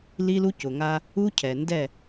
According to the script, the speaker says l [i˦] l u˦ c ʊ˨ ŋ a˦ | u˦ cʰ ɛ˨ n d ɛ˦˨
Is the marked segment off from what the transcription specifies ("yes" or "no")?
no